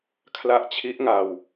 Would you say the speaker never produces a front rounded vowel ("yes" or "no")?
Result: yes